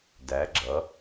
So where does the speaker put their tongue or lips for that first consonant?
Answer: tongue tip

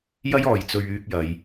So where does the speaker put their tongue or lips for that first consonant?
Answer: palate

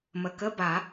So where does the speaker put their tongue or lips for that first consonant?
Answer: lips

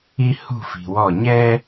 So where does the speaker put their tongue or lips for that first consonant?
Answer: throat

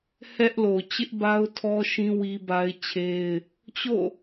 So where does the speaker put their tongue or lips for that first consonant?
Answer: throat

